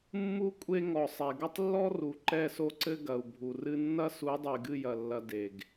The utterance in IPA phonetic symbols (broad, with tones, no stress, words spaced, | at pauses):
mːu˦ kʷʼe˦ŋɔ˨ sˤɛ˨ ɡɐ˦tˤlːɔ˦ ru˨ ǃɛ˦˨so˦ǀɘ˦ ɡɐ˨u̯bʱu˨rɨ˦ nːɐ˦su˨˦ dˤe˨ɡɨ˦˨jɐ˨lːɐ˨ de˨ɡ